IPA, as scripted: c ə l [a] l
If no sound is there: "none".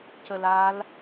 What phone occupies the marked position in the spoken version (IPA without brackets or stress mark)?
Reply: a